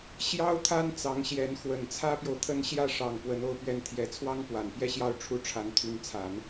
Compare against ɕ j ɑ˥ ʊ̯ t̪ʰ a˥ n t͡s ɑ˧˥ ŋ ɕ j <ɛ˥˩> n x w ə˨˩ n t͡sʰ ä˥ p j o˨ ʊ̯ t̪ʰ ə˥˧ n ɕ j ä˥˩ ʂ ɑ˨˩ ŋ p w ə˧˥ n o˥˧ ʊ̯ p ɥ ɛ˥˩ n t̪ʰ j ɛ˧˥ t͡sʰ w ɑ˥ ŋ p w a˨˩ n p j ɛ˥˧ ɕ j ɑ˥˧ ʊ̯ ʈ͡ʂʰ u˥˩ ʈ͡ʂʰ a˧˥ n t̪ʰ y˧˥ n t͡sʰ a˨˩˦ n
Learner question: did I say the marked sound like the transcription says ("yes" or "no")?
no